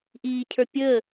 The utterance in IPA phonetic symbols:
ʔ iː cʰ ə˞ pʲ əː

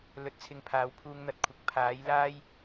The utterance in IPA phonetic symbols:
l ɵ˨˥ t̚ t͡sʰ ɪ˨ ŋ pʰ aː˨˧ w pʰ uː˧ ŋ n̪ ɐ˨ t̚ kʷʰ ɪ˨˥ k̚ pʰ aː˨˥ j l aː˥ j

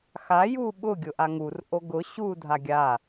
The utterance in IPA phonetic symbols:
x a j u ɓ ʊ ɡʲ ʊ ʔ a ŋ u r ʔ o ɡ ʊ ɕ u dʱ a ɡʲ a

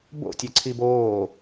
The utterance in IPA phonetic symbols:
b o̰ tʲ ɛ ǀʰ i b oː

